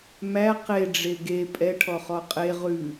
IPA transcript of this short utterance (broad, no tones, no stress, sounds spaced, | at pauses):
m æ q e ɖ͡ʐ e ɡ e pʼ ɛ ʈʰ ɔ χ ɔ qʼ e ʁ ʉ